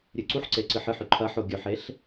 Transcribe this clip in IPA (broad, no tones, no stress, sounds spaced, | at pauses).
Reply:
ɾʲ ɨ ǀ u ħ ǀ e ǀ ɨ ħ ɨ ħ ʉ ǃʰ ɐ ħ o ɡʲ ɵ ħ e ɬ